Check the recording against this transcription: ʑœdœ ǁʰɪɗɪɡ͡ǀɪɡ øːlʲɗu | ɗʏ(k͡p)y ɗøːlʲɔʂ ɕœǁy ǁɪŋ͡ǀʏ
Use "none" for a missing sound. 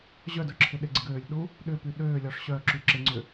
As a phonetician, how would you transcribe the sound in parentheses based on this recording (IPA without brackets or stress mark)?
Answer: p